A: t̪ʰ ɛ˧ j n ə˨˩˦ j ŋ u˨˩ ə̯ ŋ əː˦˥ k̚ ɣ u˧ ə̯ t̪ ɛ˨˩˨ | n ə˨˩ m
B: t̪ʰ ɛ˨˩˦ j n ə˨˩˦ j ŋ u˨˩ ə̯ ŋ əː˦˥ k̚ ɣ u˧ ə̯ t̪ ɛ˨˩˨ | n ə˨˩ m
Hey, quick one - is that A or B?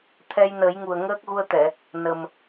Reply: A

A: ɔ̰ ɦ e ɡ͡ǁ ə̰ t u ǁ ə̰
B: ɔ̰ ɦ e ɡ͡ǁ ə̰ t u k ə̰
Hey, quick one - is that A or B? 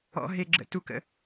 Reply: B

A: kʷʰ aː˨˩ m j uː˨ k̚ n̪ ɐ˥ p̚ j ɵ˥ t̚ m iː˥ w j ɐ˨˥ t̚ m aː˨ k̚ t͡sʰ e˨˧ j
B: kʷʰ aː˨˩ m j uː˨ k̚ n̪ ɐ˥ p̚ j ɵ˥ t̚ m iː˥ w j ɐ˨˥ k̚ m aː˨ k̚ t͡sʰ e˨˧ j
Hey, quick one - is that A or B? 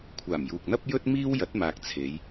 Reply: A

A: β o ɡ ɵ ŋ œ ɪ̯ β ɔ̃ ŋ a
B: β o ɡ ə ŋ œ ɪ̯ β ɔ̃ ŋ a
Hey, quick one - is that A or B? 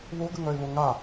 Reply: B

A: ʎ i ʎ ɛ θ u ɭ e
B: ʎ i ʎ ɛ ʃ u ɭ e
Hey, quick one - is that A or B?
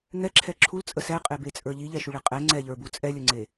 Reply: B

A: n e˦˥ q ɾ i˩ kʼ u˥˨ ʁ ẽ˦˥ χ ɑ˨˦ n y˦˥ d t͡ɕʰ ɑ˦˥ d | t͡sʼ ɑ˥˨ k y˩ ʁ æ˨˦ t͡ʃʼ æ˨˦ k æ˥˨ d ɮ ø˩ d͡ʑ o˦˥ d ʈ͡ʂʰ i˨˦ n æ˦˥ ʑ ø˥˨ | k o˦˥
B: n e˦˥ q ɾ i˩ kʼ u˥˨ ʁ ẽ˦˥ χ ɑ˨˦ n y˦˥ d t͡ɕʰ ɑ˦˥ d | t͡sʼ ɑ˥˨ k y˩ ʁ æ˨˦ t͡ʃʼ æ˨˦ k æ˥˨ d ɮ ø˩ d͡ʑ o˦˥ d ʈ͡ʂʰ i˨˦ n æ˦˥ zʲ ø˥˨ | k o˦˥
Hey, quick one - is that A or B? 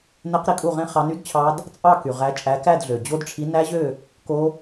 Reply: A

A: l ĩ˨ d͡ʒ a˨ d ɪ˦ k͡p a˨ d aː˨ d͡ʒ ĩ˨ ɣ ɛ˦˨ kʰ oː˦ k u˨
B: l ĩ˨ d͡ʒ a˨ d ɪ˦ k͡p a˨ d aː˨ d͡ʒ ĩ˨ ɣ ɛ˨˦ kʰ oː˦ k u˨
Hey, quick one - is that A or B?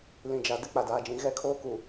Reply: A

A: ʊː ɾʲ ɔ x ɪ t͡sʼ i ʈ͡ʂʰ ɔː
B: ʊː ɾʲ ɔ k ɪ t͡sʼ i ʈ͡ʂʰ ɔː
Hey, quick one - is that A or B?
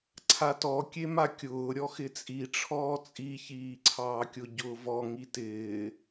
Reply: A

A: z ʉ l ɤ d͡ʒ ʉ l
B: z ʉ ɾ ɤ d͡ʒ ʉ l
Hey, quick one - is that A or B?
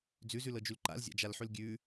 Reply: A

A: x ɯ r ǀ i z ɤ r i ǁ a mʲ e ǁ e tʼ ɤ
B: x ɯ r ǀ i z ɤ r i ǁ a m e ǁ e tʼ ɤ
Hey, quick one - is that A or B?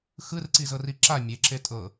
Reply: A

